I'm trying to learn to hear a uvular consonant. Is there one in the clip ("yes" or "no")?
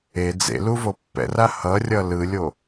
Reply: no